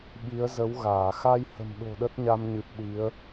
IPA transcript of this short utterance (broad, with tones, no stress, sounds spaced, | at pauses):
ɓ i˨˦ ə̯ z ə˨˦ w ɣ aː˧˩ x a˧ j h ə̤˨˩ m ɗ o̤˨˩ ɗ ə˦˥ t̚ ɲ a˧ m ɲ ɨ˨˩ p̚ ɗ i˨˦ ə̯